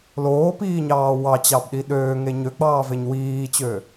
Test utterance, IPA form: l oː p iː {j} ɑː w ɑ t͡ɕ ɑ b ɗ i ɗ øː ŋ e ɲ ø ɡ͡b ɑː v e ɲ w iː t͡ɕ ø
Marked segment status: incorrect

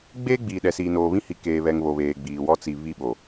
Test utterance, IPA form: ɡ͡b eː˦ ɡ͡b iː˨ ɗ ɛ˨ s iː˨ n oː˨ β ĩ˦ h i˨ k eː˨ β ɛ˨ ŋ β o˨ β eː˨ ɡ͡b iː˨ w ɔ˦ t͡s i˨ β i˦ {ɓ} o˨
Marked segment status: correct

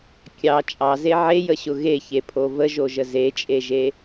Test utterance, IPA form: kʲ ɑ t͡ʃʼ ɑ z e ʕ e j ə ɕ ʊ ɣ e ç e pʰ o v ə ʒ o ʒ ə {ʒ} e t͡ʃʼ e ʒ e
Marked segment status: incorrect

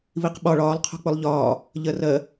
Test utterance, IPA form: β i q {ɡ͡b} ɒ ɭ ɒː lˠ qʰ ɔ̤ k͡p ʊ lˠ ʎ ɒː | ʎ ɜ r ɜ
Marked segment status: incorrect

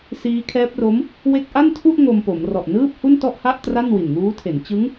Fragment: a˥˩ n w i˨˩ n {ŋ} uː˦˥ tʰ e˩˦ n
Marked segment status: correct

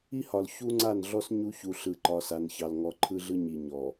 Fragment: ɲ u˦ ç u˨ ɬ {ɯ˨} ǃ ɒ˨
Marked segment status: correct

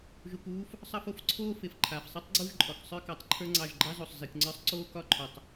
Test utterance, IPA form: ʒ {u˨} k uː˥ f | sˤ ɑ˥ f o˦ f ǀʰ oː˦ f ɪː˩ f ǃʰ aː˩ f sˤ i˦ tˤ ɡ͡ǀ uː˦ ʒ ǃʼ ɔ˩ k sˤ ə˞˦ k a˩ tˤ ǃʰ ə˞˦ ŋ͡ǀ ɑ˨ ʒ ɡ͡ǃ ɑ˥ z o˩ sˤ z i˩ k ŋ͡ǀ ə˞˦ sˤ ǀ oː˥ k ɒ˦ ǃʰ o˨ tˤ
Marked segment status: correct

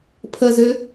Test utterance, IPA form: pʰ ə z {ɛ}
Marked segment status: incorrect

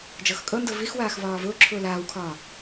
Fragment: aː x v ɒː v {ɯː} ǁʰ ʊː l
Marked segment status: incorrect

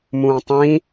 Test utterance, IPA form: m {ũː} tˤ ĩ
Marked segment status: correct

